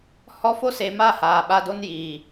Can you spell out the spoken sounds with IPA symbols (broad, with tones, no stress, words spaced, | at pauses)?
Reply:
hɔ˧fo˦se˨ma˦˨ haː˨ɓa˧do˦n jiː˨